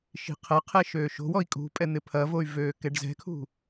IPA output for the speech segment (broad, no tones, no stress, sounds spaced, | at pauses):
ʃ i̤ qʰ ɐ qʰ ɛ ʃ øː ʃ o̤ w ɔ i̯ kʼ ṳ pʼ ɛ n̪ ɪ pʰ ɐ v o y̯ v øː k ɛ ɖ z ɛ̤ kʰ ṳ